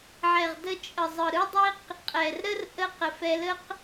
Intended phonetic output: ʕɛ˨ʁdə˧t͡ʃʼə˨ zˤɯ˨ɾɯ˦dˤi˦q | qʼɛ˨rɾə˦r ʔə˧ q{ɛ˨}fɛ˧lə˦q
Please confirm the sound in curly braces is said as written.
no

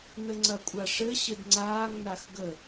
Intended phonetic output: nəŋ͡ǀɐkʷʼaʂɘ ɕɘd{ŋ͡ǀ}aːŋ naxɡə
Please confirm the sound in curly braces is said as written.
yes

